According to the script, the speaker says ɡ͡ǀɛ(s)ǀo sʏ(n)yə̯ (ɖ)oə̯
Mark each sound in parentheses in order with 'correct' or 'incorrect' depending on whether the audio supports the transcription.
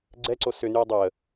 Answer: incorrect: none, correct, incorrect: dˤ

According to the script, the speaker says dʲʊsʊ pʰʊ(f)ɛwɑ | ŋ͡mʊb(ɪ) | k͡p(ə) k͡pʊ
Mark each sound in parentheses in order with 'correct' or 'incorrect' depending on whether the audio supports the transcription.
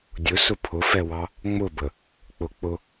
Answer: correct, incorrect: ə, incorrect: ʊ

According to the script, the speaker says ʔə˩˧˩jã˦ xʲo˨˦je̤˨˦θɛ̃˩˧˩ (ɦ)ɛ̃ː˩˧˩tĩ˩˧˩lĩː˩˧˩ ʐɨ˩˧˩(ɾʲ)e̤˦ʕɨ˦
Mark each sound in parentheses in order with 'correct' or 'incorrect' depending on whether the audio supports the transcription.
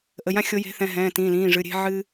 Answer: correct, correct

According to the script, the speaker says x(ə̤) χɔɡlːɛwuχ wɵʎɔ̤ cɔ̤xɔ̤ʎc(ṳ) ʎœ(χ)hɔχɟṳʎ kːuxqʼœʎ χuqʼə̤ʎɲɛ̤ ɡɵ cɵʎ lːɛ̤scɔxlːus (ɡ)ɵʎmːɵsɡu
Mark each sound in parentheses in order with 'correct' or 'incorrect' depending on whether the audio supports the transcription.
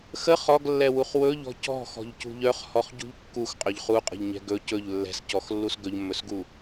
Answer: incorrect: ə, correct, correct, correct

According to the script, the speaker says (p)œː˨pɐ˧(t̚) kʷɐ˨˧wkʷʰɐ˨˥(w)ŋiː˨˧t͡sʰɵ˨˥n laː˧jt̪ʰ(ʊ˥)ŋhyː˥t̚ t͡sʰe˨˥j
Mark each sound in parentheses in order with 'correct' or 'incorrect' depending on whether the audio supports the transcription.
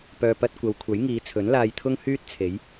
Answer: correct, correct, incorrect: j, correct

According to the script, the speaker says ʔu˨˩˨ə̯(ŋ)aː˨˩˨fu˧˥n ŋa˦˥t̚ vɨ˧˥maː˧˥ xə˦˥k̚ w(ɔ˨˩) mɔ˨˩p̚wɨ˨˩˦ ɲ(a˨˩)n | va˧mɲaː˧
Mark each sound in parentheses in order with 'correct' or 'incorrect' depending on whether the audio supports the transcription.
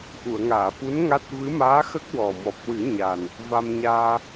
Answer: correct, correct, correct

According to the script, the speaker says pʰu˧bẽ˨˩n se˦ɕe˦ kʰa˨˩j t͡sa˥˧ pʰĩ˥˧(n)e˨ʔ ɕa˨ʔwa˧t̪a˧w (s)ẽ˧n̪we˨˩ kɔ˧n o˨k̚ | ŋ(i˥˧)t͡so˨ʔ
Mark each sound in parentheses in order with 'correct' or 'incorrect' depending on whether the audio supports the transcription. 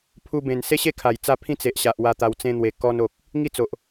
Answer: incorrect: t͡s, incorrect: t͡s, correct

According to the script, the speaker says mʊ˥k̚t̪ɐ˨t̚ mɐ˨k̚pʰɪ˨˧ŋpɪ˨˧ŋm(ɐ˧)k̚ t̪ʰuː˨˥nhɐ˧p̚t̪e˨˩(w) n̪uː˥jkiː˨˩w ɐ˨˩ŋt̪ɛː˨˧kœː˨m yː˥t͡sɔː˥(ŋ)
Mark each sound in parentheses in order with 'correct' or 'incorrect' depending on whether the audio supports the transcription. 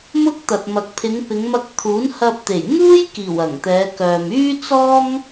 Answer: correct, incorrect: j, correct

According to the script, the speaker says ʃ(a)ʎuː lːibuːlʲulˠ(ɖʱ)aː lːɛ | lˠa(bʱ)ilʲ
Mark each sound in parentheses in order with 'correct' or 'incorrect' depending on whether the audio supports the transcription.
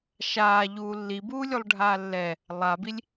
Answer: incorrect: aː, correct, incorrect: b

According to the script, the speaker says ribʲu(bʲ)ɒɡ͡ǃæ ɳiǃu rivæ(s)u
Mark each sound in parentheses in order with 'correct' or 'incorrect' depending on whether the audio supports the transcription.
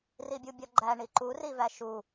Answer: correct, incorrect: ʃ

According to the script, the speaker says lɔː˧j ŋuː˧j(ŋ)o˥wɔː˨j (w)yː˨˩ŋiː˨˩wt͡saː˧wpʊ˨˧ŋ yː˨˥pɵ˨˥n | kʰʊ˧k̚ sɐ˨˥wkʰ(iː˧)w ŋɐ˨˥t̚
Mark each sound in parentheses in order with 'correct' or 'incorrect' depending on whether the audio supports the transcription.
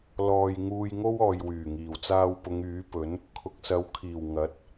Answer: correct, correct, incorrect: iː˨˩

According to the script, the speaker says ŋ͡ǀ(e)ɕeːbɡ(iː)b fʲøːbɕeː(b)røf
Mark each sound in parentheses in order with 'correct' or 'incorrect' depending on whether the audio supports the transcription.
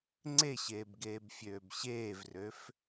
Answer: correct, incorrect: eː, incorrect: v

